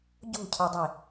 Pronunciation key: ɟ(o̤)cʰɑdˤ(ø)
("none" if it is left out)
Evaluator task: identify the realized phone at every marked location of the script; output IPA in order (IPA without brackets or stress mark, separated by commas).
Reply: o̤, e